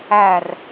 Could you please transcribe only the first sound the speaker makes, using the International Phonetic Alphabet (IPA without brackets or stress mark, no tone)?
æ